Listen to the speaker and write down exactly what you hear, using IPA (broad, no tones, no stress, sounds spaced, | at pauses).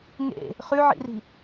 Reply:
ŋ ḛ | χ ʉ ʕ ḭ r i̤